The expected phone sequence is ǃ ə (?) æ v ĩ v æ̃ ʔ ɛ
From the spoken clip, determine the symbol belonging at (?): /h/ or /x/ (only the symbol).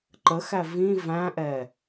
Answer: x